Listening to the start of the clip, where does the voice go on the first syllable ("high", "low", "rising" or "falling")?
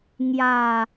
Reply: low